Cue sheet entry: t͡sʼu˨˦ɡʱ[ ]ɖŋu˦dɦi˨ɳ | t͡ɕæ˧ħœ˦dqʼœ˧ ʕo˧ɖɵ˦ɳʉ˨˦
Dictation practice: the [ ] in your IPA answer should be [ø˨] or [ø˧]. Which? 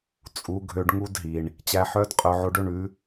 ø˧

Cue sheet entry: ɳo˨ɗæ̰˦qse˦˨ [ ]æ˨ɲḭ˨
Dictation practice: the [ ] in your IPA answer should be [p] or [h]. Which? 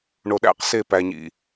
p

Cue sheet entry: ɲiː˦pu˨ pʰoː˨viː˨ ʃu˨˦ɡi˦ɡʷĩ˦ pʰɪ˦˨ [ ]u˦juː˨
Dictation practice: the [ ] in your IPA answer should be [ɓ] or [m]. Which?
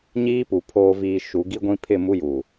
m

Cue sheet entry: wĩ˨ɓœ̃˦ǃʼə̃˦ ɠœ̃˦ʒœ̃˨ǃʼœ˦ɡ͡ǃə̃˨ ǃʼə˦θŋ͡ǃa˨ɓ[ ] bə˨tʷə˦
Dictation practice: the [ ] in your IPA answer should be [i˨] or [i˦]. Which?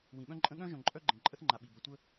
i˨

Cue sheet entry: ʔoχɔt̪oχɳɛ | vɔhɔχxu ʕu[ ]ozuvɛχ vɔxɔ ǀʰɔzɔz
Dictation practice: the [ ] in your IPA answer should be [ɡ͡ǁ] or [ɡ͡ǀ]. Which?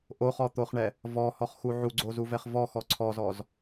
ɡ͡ǀ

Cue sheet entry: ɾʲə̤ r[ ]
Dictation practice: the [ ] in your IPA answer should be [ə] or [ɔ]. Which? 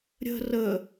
ə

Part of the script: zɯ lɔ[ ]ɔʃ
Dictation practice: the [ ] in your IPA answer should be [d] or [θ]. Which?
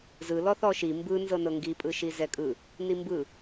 θ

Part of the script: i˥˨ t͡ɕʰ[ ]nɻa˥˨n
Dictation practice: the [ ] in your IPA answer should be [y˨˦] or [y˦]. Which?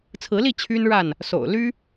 y˦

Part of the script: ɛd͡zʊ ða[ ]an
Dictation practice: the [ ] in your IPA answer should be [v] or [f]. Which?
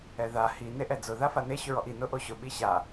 f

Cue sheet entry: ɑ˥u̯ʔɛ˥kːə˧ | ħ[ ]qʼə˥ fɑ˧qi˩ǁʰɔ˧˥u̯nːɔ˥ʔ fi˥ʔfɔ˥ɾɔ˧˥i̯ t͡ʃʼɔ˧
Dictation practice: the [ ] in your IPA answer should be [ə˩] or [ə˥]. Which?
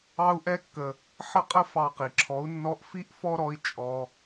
ə˥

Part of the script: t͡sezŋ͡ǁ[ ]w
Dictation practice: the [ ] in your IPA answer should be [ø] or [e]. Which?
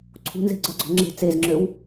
ø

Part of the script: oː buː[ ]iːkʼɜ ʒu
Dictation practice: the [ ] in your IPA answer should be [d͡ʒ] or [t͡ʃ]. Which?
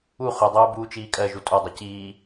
t͡ʃ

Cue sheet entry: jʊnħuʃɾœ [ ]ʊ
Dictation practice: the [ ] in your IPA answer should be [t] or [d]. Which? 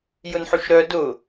d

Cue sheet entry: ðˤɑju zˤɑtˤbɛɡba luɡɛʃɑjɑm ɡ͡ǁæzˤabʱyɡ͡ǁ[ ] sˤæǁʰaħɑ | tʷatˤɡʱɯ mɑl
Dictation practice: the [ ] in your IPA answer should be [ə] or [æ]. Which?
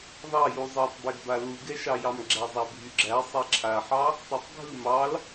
æ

